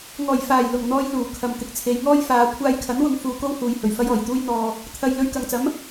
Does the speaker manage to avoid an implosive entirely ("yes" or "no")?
yes